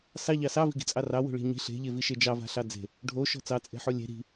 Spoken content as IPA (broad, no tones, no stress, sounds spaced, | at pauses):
s ɑ ʎ ɑ s ɑ v i̤ ɡ i̤ t͡sʼ ɑ r ɑ w o̤ ɭ i̤ ɲ i̤ ɬ e̤ ʎ e v i ʃ e d͡ʒ ɑ v a̤ ɬ ɑ d͡z e̤ | ɖʱ o ʃ ɔ̤ t͡s ɑ t͡sʼ e̤ ħ o lʲ e̤ ɾ i̤